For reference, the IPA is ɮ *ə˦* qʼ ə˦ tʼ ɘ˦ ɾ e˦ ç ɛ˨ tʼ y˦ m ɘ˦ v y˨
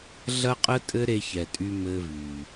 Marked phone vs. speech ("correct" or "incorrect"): incorrect